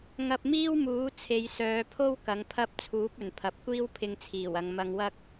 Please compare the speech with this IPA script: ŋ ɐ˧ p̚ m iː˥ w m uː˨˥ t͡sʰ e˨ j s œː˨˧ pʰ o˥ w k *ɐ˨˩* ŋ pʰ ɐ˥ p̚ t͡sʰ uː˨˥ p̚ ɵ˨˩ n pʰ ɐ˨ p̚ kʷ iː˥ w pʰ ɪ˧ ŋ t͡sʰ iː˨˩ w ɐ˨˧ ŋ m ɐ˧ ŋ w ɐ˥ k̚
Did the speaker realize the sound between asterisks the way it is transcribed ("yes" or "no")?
no